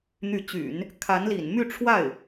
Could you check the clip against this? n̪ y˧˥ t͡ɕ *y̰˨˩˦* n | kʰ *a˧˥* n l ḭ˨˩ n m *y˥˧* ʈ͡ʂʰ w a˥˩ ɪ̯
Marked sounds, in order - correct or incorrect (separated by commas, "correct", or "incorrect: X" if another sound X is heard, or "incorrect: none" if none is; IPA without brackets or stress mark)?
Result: correct, correct, correct